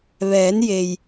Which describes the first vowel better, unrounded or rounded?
unrounded